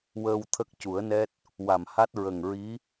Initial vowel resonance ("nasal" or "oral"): oral